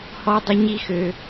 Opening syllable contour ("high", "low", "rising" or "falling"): high